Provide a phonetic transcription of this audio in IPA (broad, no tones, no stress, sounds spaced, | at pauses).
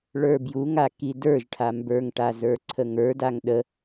ɭ ə˞ b j u ŋ a k i d ə˞ ʒ ʈʰ a m b ə˞ ŋ ʈ a z ə˞ ǀʰ ə ŋ ə˞ d a ŋ ɗ ə